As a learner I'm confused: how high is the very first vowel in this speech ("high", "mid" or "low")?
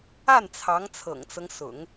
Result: low